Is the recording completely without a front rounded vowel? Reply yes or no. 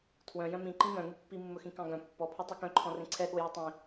no